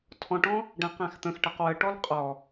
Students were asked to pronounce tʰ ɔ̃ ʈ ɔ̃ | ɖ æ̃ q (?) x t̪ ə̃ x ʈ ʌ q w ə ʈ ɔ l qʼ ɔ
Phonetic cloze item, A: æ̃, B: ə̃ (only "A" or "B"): A